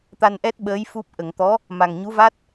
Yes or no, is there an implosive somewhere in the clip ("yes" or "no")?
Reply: yes